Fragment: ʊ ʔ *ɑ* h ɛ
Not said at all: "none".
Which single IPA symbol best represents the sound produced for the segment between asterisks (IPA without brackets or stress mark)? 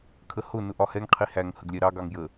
ɒ